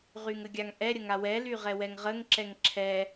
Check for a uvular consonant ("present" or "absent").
present